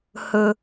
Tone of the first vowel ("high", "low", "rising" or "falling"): low